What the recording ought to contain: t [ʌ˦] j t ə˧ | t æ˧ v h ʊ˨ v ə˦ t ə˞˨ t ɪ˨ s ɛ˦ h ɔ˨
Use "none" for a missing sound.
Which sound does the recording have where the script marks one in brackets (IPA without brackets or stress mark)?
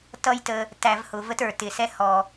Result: ʌ˦